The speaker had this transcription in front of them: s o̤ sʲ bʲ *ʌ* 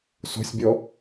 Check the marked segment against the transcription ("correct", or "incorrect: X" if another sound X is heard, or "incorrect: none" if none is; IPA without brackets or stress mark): incorrect: ɔ